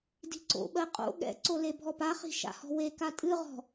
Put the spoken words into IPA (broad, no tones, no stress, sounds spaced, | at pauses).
d i̤ ǀ o̰ ɓ ɜ qʼ o̰ ɠ ɛ̰ ǀ o l e bʱ ɔ p a χ i̤ ʃ a̰ h ɔ̤ w e k a tʼ ɨ ʁ ɔ̤